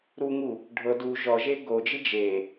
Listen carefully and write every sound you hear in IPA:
ɾ u ŋ u | ɖʱ ɤ d u ʒ ɔ ʒ e ɡ o d͡ʒ i d͡ʒ e

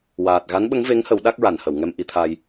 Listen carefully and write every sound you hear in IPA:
w aː˨˩ t̚ ɣ a˧˥ n ɓ ə˧˥ ŋ v e˧˥ ŋ h ə˨˩˦ w ɗ a˦˥ k̚ ɹ a˨˩˨ n h ə˨˩˨ w ŋ ɛ˧ m ʔ i˧ t̪ʰ a˧ j

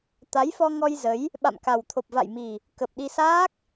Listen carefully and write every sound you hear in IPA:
t̪ a˨˦ j f ɔ˧ ŋ ɔ˧ j z ə˨˦ j | ɓ a̰˧˨ m k a˨˩ w t̪ʰ o˨˩ p̚ v a̰˧˨ j m i˨˩ | k ə˨˩ p̚ ɗ i˧ s aː˦˥ k̚

